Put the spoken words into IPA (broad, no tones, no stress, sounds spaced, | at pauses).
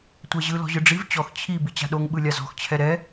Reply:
tʷ ɛ ʑ ɯ l ɔ̤ ʑ ɯ ɖ͡ʐ i v t͡ɕ ɔ x t͡ɕʰ i b i t͡ɕ a̤ ɗ o ŋ ɓ ɯ lʲ a z ɔ̤ x t͡ɕʰ ɛ ɾ ɛ